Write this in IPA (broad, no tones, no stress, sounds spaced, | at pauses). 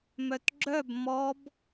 m œ t ɡ͡ǁ œ b m ɔ b